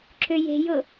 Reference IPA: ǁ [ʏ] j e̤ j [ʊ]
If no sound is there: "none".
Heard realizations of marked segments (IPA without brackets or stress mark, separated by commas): ʏ, ʊ